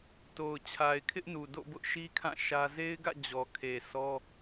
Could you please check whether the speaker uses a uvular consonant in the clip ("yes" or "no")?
no